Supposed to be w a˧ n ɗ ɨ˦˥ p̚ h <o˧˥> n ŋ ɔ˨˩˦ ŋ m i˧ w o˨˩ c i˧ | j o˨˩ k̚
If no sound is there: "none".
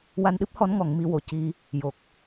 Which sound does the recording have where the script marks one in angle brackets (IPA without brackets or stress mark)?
ɔ˧˥